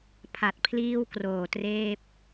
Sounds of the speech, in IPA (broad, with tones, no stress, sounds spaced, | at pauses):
pʰ a˨˩ t̚ pʰ l iː˥˩ w k r oː˨˩ t r eː˥˩ p̚